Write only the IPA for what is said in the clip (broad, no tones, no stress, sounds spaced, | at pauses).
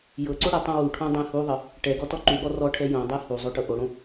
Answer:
j ɤ ǀ o ɽ ɛ tˤ õ w u ʈʰ õ dˤ ɛ̃ h u ðˤ ɤ | ʈ ɛ ɡ ɔ t ɔ ǃ u ɠ ɔ r ɔ ʈʰ ɛ j õ dˤ ɛ h u zˤ o ʈ ɤ ʔ o ɽ õ